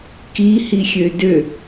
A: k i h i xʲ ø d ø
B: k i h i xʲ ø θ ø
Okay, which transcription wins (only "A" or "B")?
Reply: A